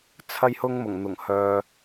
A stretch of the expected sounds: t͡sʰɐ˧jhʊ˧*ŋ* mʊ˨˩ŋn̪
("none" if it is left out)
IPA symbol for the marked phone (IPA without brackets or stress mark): ŋ